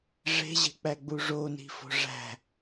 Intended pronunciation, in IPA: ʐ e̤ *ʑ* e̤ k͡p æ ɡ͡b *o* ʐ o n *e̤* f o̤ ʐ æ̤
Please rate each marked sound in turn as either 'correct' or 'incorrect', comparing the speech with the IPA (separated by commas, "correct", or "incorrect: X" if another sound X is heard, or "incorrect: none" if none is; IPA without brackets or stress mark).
correct, incorrect: u, incorrect: i̤